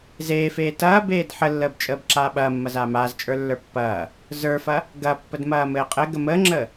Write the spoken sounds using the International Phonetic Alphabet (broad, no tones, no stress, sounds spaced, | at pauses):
z eː f eː t ɐː b eː d ħ ə lː əː b t͡ʃʼ əː b ǁ aː ɓ ɐː mː ɐ z aː m aː z t͡ʃʼ ə˞ lː ə˞ pː ɐː | z ə˞ f ɐ | ɡ ɐ pː ə d m ɐː m ɘː qʼ ɘ ɡ ə m əː ŋ͡ǁ əː